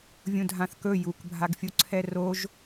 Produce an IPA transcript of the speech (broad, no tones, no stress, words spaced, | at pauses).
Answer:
vʲũdʱãθkɵ jukbʱaɡfʲuǀʰɛ roʒ